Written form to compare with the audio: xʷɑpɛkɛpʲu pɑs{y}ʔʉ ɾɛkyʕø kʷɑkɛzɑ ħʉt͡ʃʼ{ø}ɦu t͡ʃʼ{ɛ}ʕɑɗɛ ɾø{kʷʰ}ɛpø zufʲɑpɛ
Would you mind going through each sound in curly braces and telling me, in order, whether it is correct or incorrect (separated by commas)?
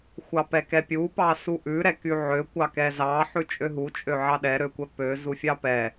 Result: incorrect, correct, incorrect, incorrect